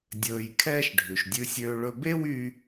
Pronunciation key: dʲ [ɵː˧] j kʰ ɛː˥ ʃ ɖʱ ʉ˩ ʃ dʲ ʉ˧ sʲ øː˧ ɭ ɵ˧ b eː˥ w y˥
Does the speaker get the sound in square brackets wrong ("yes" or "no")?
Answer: no